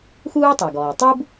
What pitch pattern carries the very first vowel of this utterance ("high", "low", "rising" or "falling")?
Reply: high